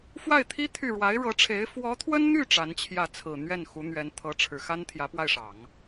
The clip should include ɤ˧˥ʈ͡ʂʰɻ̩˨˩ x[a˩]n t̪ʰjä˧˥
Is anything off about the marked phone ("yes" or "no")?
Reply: yes